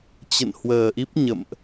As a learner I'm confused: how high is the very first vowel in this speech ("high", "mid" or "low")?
mid